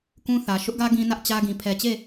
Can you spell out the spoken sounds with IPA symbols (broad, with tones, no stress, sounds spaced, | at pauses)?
k ũ˦ θ ä˨ ʃ ʊ˦ ʔ ɡ ä˦ ɡ ĩ˦ n ä˦ ʔ t͡ɕ ä˦ ɡ ĩ˨ pʰ ɛ˨ t͡ɕ e˦˨